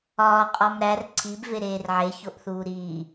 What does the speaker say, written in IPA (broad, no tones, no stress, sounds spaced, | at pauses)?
ɒː qʼ ɒ m ɾ æ r ǀʰ i b v e ɾ eː r ʕ e ç o ʔ θ uː ɾ iː